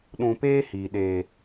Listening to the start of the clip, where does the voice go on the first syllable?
low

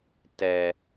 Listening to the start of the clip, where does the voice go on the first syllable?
low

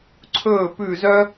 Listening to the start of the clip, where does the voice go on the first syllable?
falling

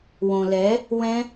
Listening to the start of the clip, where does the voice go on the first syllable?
low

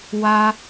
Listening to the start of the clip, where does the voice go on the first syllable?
high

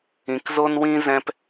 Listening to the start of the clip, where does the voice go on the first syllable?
low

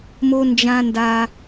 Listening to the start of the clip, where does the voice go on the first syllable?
high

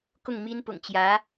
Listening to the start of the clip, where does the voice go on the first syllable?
falling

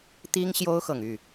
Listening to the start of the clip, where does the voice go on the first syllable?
high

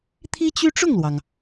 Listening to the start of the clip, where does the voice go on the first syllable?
high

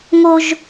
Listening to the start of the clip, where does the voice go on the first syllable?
high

